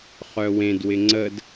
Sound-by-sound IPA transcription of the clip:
χ œ w ẽ d w ɪ ŋ͡ǀ ə d

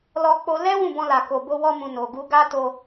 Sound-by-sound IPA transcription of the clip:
l ɔ˧ k͡p o˧ l ɛ˦ w ũ˦˨ b ɔ̃˧ l a˨ k o˨ b o˧ w ɔ˧ m ũ˨ n o˨ ɡ u˧ ɡ a˦ t o˧

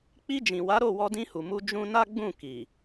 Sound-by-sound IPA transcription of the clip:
k͡p i˧ d͡ʒ ĩ˨ w a˨˦ ɾ o˦˨ w ɔ˧ d ĩ˧ h u˨ m u˧ d͡ʒ ũ˧ n a˦ ɡ͡b ũ˦˨ k i˨

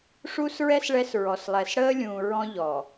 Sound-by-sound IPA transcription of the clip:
ʂ uː˦ s ɹ ɛ˦ s ɭ ɛ˦ s ɹ ɔ˨ s lˠ ɛ˨ s ɽ əː˦ lʲ ũː˨ ɹ ɔ̃˦ ʎ ɔ˨

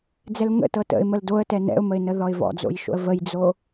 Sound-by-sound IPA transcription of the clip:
d͡z ɛ l ŋ ə̰ t ɤ t ə̰ ɪ̯ m ə l d o ə̯ t ɛ n ɛ̰ ʊ̯ m ə ɪ̯ n ə ð ɔ ɪ̯ v ɔ̰ d͡z o̰ j ʃ o̰ ə̯ v ə j d͡z o

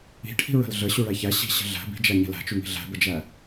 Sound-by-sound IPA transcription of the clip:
i̤ ʈʰ i̤ ɹ ə̤ l ɮ ə ɕ u ɭ æ ç æ ɕ i̤ ɕ ə̤ ɮ æ̤ b i̤ d͡ʒ æ ɲ ə̤ l æ̤ t͡ʃ u ŋ i̤ ɮ æ̤ b ə d͡ʒ æ

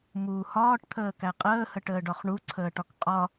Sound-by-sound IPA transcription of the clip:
m uː h ɒː ʈ t̪ʰ əː k æ qʼ əː h ə ʈ əː ɖ ɒ χ ɳ u ǀʰ əː ʈ ɒ k qʼ ɒ

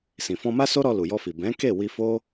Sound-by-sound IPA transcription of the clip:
s ĩ˨ f ɔ̃˧ m a˦ s o˦ ɾ ɔ˧ l u˨ j ɔ˧ f i˨ b ɛ̃˨˦ k e˦˨ w i˧ f o˦

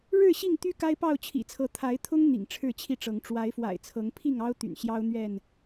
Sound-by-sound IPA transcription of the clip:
ɻ ɻ̩˥˨ ɕ i˥˨ ŋ t̪ y˦ k a˦ ɪ̯ p ɑ˥˨ ʊ̯ t͡ɕʰ ḭ˨˩ t͡sʰ ɤ˨˦ t̪ʰ a˨˦ ɪ̯ t̪ʰ ʊ˦ ŋ n̪ ḭ˨˩ ŋ ʈ͡ʂʰ ɻ̩˥˨ t͡ɕʰ i˥˨ ʈ͡ʂ ɤ˨˦ ŋ ʈ͡ʂ w a˨˦ ɪ̯ f w a̰˨˩ ɪ̯ t͡sʰ ɤ˨˦ ŋ pʰ i˥˨ ŋ ɑ˦ ʊ̯ t̪ y̰˨˩ n ɕ j ɑ˦ ʊ̯ n̪ ɥ ɛ˥˨ n

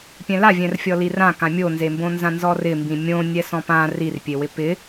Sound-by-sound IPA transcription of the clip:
pʲ ɛ̃ l a vʲ ɛ̃ r fʲ ɔ l i r ã k ã mʲ o n z e m b õ n z ã n z ɔ r ɪ m b ĩ mʲ õ nʲ ɛ s ɔ̃ p ã r i r pʲ e w ɪ p ɪ

